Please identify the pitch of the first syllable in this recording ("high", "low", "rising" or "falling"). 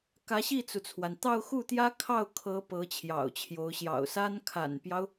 rising